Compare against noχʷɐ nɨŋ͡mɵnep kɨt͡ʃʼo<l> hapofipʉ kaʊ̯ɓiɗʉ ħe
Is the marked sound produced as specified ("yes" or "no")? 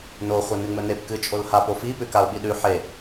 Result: yes